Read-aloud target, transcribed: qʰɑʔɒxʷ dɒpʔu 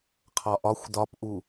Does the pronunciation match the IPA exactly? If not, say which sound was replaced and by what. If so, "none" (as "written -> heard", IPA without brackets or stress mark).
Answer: ɑ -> ɒ